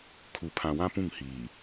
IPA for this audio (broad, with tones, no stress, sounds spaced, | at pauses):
kʰ u˨ pʰ ã˨ w ã˦ p ũ˦˨ ŋ h iː˨